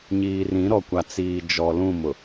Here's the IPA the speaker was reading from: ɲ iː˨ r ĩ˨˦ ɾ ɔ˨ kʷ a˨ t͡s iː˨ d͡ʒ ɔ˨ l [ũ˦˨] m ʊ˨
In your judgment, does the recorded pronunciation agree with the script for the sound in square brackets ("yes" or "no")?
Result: yes